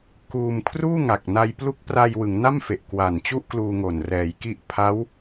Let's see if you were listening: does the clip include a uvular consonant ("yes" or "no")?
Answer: no